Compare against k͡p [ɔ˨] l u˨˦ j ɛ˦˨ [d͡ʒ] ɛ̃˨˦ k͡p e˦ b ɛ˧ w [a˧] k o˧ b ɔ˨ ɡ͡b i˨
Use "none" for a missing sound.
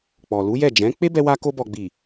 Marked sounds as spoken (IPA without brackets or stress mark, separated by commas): ɔ˨, d͡ʒ, a˧